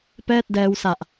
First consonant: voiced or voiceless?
voiceless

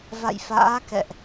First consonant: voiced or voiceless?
voiced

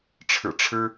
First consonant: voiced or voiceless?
voiceless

